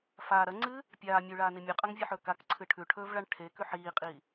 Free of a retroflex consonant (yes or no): no